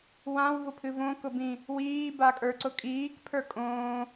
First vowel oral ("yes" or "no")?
no